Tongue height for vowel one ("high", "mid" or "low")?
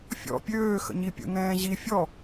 mid